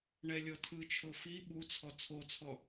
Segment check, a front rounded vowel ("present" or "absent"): absent